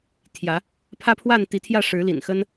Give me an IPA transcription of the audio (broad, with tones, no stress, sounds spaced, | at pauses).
t̪ʰ j ä˨˦ | pʰ ä˦ pʰ w a˥˨ n t̪ i˨˦ t̪ʰ j ä˥˨ ʂ ɻ̩˨˦ l ḭ˨˩ n x ə˦ n